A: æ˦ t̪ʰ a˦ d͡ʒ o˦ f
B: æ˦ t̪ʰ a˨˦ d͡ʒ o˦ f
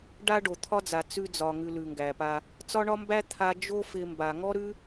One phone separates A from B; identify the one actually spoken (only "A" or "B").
A